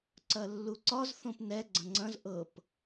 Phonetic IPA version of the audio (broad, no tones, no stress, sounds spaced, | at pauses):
ǀ ɐ lː u ǀ ɒ z θ õ p n ɛ ɡ͡ǀ ɐ̃ ŋ͡ǀ ɐ̃ z ʔ ɤ p